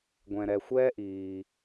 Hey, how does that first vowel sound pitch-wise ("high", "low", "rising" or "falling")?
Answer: low